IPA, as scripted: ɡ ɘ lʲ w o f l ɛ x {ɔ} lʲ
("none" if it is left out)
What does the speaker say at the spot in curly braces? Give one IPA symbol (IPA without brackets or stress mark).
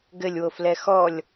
ɔ